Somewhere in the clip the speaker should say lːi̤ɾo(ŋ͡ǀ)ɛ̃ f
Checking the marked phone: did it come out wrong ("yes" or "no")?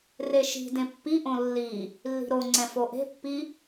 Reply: no